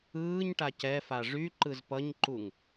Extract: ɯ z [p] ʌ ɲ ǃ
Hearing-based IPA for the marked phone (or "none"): p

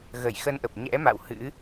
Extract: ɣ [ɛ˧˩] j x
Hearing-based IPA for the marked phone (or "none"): ə˧˩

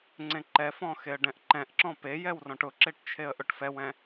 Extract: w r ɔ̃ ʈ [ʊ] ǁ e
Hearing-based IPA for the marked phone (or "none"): ʊ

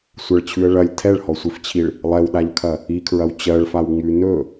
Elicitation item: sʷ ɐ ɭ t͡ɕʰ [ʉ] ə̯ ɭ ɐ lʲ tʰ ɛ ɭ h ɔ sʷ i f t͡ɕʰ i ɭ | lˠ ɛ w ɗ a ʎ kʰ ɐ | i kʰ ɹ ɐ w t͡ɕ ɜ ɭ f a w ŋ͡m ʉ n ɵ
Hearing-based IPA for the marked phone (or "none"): ʉ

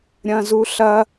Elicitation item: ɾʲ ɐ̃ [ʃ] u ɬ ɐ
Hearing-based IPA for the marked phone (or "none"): z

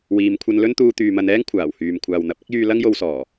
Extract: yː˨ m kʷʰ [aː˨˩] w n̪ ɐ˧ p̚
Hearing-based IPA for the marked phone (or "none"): aː˨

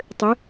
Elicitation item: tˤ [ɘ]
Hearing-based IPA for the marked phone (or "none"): ɘ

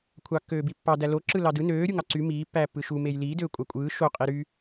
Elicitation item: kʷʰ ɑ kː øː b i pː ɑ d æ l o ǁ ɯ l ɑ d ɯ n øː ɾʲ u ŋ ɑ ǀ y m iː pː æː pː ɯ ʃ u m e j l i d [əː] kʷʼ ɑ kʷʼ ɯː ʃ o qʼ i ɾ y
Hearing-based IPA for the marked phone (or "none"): øː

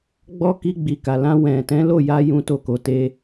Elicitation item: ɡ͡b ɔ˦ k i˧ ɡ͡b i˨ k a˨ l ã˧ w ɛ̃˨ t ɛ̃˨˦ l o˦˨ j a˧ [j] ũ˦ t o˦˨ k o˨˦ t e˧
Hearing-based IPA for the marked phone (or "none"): j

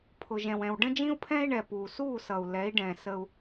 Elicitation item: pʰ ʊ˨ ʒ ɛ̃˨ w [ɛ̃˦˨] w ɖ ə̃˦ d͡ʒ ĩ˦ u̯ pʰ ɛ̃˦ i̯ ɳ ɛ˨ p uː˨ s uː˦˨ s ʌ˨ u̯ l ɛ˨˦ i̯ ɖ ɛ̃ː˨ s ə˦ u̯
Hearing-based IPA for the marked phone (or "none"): ɛ̃˨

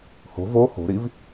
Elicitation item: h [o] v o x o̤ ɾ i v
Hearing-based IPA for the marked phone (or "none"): o̤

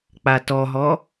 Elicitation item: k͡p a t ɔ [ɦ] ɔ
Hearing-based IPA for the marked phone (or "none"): ɦ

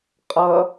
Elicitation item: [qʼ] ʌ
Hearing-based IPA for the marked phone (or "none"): qʼ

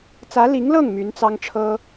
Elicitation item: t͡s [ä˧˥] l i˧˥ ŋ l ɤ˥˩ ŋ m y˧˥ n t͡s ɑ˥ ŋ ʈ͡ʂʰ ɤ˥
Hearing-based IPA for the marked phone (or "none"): ä˧˥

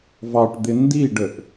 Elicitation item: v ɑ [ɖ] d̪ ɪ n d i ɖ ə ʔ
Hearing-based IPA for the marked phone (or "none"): ʈ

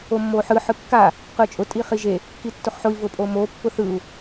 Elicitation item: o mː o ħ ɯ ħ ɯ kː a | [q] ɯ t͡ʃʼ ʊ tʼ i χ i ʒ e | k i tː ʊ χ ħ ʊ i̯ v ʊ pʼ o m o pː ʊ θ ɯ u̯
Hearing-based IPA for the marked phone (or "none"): q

